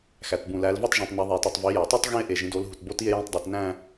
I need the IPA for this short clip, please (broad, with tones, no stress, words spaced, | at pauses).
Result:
xæ˩tbũ˩ læ˩˧lve˥˧tˤʒũ˩tˤ ne˩˧ðˤi˩e̯ti˩tˤ vi˩˧jæ˩ tˤo˥˧tˤ ɣĩ˥˧e̯ ʔe˩ʒĩ˩˧do˩˧l ɦu˩tbo˥˧ti˥˧e̯ jẽ˥˧tˤdˤo˩˧tnæ̃˥˧